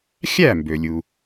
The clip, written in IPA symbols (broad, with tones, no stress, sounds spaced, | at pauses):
xʲ æ˥˩ m b ø˩ lʲ u˩